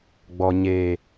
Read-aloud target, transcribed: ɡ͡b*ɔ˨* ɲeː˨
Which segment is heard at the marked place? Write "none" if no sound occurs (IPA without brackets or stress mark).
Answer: ɔ˨